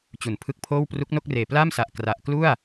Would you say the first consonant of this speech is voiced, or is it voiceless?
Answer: voiceless